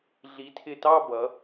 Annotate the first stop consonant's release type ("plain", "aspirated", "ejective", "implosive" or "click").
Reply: aspirated